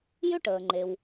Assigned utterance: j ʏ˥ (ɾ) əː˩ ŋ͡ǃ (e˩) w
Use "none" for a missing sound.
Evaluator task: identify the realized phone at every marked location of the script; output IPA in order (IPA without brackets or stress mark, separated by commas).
ʈ, e˩